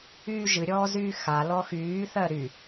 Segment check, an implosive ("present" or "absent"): absent